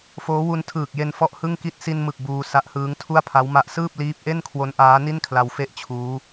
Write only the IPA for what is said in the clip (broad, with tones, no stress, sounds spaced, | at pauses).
f oː˦˥ w u˧ n tʰ ɯː˨˩ k̚ j e˧ n f ɔ˥˩ ʔ h ɯ˥˩ ŋ k i˥˩ t̚ s i˧ n m ɯ˨˩ k̚ b uː˧ s a˦˥ ʔ h ɯː˦˥ ŋ tʰ u˥˩ a̯ pʰ a˦˥ w m a˦˥ ʔ s ɯː˥˩ p̚ l iː˦˥ p̚ ʔ e˥˩ n kʰ w o˦˥ n ʔ aː˦˥ n i˥˩ n kʰ l a˧ w f e˥˩ ʔ t͡ɕʰ uː˦˥